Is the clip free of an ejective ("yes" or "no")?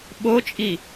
no